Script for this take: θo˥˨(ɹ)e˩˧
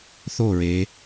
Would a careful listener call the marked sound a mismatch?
no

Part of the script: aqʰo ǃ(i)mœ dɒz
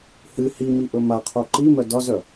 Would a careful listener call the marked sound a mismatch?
no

